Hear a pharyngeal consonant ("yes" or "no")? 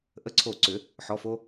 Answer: yes